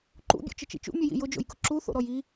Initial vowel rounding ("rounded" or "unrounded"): rounded